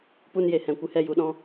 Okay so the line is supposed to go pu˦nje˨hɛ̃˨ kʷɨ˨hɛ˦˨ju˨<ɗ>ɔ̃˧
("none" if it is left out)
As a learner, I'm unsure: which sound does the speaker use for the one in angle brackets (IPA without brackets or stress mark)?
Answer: ɗ